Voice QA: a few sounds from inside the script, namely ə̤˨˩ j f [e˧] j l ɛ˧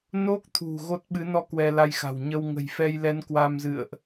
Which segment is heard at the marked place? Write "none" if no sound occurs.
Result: ɛ˧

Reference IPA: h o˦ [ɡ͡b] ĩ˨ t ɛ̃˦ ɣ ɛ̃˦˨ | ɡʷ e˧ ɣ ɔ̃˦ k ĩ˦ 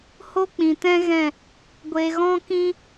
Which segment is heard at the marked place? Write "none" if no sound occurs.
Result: k͡p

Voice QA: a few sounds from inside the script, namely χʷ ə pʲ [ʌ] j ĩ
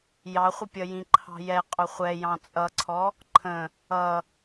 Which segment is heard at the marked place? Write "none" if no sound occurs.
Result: ʌ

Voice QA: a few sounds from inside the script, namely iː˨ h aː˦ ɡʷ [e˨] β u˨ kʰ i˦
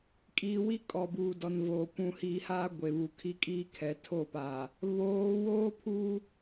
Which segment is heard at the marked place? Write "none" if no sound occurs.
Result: e˨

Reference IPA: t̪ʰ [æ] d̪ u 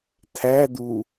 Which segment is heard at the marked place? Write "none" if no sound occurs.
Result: æ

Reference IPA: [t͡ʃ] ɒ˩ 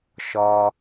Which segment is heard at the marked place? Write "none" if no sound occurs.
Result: ʃ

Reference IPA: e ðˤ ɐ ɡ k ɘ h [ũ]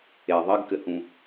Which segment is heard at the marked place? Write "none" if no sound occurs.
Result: ũ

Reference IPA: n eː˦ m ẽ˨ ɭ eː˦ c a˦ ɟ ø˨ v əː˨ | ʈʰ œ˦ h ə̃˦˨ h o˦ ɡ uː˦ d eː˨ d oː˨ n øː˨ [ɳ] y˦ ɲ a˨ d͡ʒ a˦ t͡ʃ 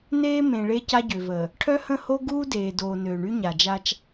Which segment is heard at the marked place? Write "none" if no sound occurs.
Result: ɳ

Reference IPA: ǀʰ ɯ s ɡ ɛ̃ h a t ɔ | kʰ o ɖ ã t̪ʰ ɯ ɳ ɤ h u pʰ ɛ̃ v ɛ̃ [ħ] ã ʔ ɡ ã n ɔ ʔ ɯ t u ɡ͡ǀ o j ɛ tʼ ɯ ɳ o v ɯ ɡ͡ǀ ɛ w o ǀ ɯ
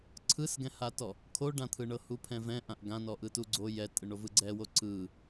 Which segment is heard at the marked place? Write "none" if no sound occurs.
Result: ʔ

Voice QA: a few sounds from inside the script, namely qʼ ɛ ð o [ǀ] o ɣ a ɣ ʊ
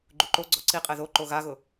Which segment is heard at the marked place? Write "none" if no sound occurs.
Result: ǃ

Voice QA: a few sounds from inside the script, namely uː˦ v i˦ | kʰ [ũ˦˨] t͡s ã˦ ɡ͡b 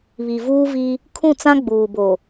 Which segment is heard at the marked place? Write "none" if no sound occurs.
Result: ũ˦˨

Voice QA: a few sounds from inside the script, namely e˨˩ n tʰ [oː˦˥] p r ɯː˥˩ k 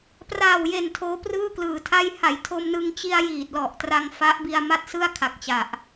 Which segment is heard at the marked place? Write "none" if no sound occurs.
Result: oː˦˥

